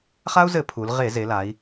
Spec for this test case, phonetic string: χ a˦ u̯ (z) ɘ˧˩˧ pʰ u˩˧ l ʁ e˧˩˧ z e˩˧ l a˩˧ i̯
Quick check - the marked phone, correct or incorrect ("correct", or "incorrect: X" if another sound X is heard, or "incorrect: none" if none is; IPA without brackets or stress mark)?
correct